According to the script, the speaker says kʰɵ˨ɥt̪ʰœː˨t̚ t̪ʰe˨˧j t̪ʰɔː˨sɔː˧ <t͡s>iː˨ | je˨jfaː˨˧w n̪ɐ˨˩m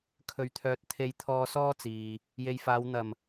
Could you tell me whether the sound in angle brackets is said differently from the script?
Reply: no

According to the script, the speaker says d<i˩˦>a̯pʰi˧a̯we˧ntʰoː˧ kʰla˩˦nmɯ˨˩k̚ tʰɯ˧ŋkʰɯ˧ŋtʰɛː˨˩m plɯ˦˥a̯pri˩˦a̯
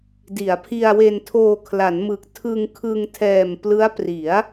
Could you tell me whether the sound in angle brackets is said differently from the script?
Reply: no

